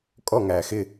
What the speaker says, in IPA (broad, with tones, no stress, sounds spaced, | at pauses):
kʼ ɔ˥˨ ŋ æ˨˩ x ɪ˥˨